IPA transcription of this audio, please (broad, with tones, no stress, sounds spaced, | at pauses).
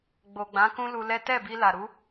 ɡ͡b o˨ ɡ͡b ã˨˦ k ũ˦ l u˧ l ɛ˦ t ɛ˦˨ b i˧ l a˨ ɾ u˨˦